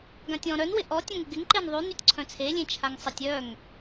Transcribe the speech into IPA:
ɡ ã tʲ ɔ̃ ɾ œ n w ɪ ʔ ɔ tʲ ã ŋ ɪ ɡ ɪ ŋ ǃ e n ðˤ y n y tʲ ǀʰ œ̃ t͡sʰ e lʲ ẽ t͡ʃʰ a ŋ sˤ ɪ tʲ œ ŋ

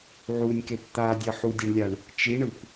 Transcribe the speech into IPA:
ʕ u nʲ k e p t̪ a dʲ ʌ ħ u dʲ ʌ ɳ lʲ a ɳ | t͡ʃ i ɳ ɯ p

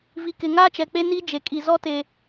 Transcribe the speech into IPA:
v i˨ k ɪ˨ ŋ aː˦ t͡ʃ ɛ˨ k͡p e˦ n iː˦ d͡ʒ e˨ kʼ i˨ z ɔ˦ t e˨

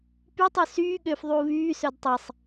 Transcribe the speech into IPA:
p y tˤ y s yː ɠ ø f ðˤ uː β yː s œ d tˤ e sˤ

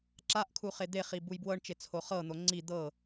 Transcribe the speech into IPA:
ǁ a ʔ kʰ u χ e d̪ e χ i b u j b w ɤ ɳ t͡ʃ e t͡sʰ o χ ɤ n̪ o ŋ͡ǀ i d̪ ɤ

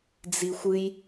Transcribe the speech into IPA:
d͡z i xʷ ɨ j

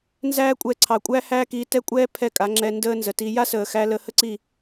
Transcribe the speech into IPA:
n z æː˦ kʷʼ ɛ˧ ǀʰ ɑ˨ kʷʼ æ˦ h æː˦ k iː˧ t ɛ˦ kʷʼ ɛː˦ pʰ ɛ˦˨ kʼ a˨˦ ŋ͡ǁ ɛ˧ n d əː˦ n z ə˨ t i˧ j a˦ s əː˨ x æ˧ l ə˧ h ə˦ ǀ i˦˨

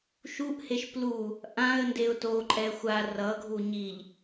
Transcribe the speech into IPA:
ʃ u ʔ h e ʃ p l u | ʔ ã ə̯ n d e ʊ̯ t o ǃʼ ɛ xʷ a r ʌ ɡʱ u ɲ i ʎ

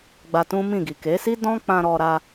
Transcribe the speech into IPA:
ɡ͡b a˧ t ũ˦ m ĩ˦˨ ɡ i˨ k e˨˦ s i˦ d ɔ̃˦ k͡p ã˧ ɾ ɔ˧ ɾ a˧

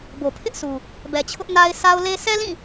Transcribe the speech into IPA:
b o˨ pʰ ɪ˦ ʔ sʰ u˨ | b ɛ˨ t͡ɕʰ ʊ˦ ʔ n a˦ ɪ̯ sʰ a˦ ʊ̯ l e˦ sʰ ɛ˦ l ĩ˦˨

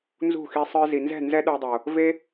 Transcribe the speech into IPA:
n z ṳ˦˨ x i˧ sˤ ə˞˧ z i˨ n z ɛ̤˦˨ n z ɛ˦ ɗ ə˞˧ dˤ o˨ | v e˦

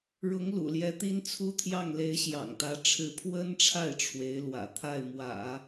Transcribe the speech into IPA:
ɻ ʊ˧˥ ŋ l ṵ˨˩ l j ɛ˧˥ t̪ i˥ n t͡sʰ u˥ t̪ʰ j ɑ˥˩ ŋ l e˧˥ ɪ̯ ɕ j ɑ̰˨˩ ŋ t̪ ä˧˥ ʈ͡ʂʰ ɻ̩˧˥ pʰ w ə˥ n ʈ͡ʂʰ a˥˩ ɪ̯ ʈ͡ʂʰ w e˧˥ ɪ̯ l w ä̰˨˩ t̪ʰ a˥˩ ɪ̯ m w ä̰˨˩˦

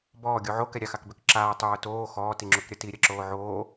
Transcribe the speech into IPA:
b ɔː ɡʲ u ʕ o k ɛ ɾʲ a x a k b ø k ǁ aː tˤ ʏ w o t oː x ɔː t i ŋ͡ǁ u k ɾʲ ɐ t i ɾʲ ɐ ǁ oː ʕ oː

